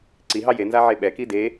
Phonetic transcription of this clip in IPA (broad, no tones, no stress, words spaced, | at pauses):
ǀiɦɑ je nzaʕeɓɛki de